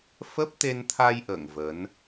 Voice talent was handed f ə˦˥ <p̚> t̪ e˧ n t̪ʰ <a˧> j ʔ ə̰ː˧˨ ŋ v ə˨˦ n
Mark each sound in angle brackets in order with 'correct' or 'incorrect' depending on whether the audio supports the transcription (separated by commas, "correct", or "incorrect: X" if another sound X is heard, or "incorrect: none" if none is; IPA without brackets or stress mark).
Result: correct, correct